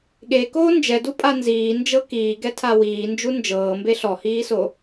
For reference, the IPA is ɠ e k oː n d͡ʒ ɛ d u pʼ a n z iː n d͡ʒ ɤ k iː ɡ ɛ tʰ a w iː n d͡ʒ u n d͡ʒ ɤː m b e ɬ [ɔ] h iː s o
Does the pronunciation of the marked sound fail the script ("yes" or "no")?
no